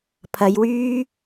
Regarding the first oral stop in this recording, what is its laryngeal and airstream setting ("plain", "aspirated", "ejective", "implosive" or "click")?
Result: aspirated